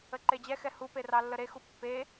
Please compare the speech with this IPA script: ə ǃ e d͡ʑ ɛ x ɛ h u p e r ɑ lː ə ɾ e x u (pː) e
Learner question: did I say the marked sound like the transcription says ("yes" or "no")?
yes